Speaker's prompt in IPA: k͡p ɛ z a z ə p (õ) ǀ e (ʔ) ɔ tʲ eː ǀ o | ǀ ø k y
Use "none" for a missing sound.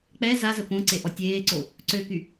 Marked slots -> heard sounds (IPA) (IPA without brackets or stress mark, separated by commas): õ, ʔ